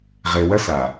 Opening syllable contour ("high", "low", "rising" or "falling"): low